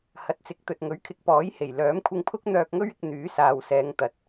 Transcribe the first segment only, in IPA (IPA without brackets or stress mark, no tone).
h